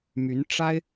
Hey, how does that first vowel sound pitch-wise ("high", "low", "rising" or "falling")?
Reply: rising